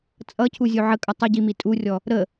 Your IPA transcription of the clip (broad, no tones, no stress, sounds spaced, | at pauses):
t͡sʼ ʌ cʰ u zʲ u ʕ ə kʼ ʌ tˤ ə ɟ i m i tʼ u rʲ ɔ | ɾ ə